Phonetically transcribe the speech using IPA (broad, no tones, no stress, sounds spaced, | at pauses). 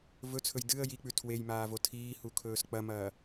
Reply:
v ɵ t͡sʰ ɵ j d ɨ ə̯ j i k͡p ʉ tʰ w e j m aː v o tʰ iː h u kʰ ɵː s k͡p ɐ m ɐː